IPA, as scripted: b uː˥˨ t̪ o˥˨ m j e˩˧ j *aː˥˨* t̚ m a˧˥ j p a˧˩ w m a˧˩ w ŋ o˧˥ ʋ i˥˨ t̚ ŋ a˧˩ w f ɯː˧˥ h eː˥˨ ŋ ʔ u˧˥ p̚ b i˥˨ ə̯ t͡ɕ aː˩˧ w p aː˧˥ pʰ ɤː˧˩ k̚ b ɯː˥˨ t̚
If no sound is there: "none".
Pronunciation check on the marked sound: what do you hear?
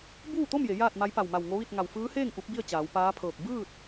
aː˥˨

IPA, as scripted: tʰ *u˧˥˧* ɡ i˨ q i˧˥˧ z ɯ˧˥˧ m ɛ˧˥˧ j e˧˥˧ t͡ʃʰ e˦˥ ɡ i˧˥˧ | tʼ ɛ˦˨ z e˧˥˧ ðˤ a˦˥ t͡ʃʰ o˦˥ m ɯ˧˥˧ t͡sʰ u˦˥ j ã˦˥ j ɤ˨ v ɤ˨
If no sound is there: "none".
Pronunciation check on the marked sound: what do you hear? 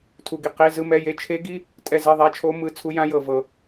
u˨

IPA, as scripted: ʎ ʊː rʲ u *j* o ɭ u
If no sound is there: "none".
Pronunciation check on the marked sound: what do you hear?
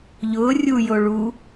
j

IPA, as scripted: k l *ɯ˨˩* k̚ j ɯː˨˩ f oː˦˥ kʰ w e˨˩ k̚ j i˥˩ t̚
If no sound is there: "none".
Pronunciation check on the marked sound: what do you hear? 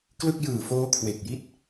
ɯ˥˩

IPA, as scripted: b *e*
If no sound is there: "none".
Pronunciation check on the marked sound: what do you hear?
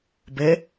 e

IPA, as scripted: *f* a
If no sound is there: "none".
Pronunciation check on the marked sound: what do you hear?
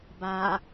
b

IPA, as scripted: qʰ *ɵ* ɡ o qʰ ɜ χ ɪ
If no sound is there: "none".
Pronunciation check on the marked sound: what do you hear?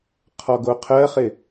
ɔ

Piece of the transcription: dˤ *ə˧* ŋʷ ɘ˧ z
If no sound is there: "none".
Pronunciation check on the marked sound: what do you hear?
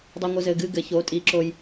ɛ˧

